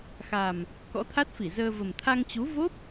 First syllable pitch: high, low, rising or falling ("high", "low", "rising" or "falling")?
low